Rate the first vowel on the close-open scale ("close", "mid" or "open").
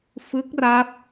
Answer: close